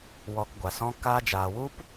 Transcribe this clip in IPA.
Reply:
w ɔ˧ k ɡʷ a˨ s ɔ̃˧ k aː˧ d͡ʒ aː˨ w u˦ p

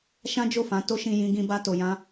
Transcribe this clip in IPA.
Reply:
ʃ ã˦ d͡ʒ o˦˨ f ã˨˦ t o˦ ʃ ĩ˦ j ĩ˦ ɡ ĩ˦ b a˦ t o˧ j ã˦

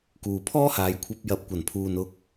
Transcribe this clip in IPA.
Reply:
k uː˨ pʰ ɔː˥ h aː˨˧ j kʷʰ ɐ˧ p̚ j ɐ˨ p̚ kʷ ɐ˨˩ n pʰ uː˨ n ʊ˥ k̚

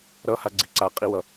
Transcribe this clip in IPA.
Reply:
ɾ ʌ h a ɡ͡ǀ i ǀ a qʼ i w ʌ

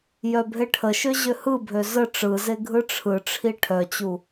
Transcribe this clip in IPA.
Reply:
j œ bʱ e ʈʰ ə ʃ ø ʑ ø h ɯ bʱ ø z ə ʈ͡ʂ ɯ z e ɡʱ ɯ ʈ͡ʂʰ ɯ ʈ͡ʂʰ i ʈʰ œ t͡ɕ u

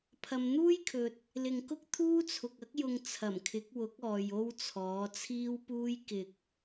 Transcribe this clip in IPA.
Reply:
pʰ ɐ˨˧ m n̪ uː˥ j kʰ ɵ˨ t̚ | l ɪ˨ ŋ k ʊ˥ k̚ t̪ʰ uː˥ t͡sʰ ʊ˨ k̚ ɐ˥ k̚ j ʊ˧ ŋ t͡sʰ ɐ˨˩ m kʰ ɪ˨˥ k̚ w ʊ˨˥ k̚ ɔː˨ j o˥ w t͡sʰ ɔː˨˥ t͡sʰ iː˥ w p uː˥ j k ɪ˨ k̚

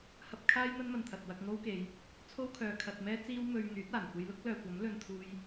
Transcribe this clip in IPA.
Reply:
h ɐ˧ p̚ kʰ aː˥ j n̪ ɐ˥ n m ɐ˨ n t̪ʰ ɐ˨ t̚ w ɐ˧ k̚ ŋ o˥ w k e˨˧ j | t͡sʰ o˥ w kʰ œː˨ kʰ ɐ˨ t̚ m ɛː˥ t͡s iː˥ w m ɵ˧ ɥ ŋ yː˨˥ t̚ aː˨˩ n kʷ e˧ j l ʊ˥ k̚ l œː˨ kʷ ɐ˨˥ m l ɵ˧ n t̪ʰ uː˧ j

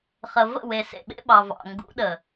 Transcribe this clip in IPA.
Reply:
χ ə˨ v ə̰˦˨ w e˨ s ḛ˨ ɓ ḛ˦ ɓ ɑ˨ v ɑ̰˨ ŋ ɡ ṵ˨˦ ɗ ə˨

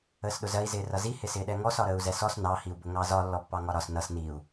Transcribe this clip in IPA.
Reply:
əː s ɗ ʊ z ɜ i̯ z ɪː r ʌ z i h ɪ s ɪː ɗ ɛ ŋ ɔ s ɒ ɾ əː u̯ z ɛ s ɔ s n ɑ h i u̯ b ʊ ŋ ɑ z ɒ lː ɔ pː ɑ ŋ ɒ ɾ ɒ s n ʌ s n i u̯

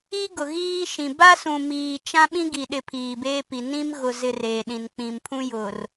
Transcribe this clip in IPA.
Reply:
i˦ ɡ ʊ˨ ɣ iː˦ ʃ ĩ˨ b a˦ s ũ˨ m iː˨ t͡ʃ ã˦ ɓ ĩ˦ ɡ i˨ ɗ ɪ˨ pʰ iː˨ b eː˦ p i˨ n ĩ˦ m ɣ ʊ˨ z ɪ˨ r eː˨ ɗ ĩ˨ n k͡p ĩ˨ m pʰ ũ˦ j ʊ˨ r

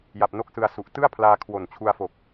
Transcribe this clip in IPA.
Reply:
j a˨˩ p̚ n o˥˩ k̚ s ɯ˧ a̯ s u˨˩ ʔ t ɯ˥˩ a̯ pʰ l aː˧ kʰ w o˨˩ n t͡ɕʰ u˧ a̯ f o˨˩ k̚

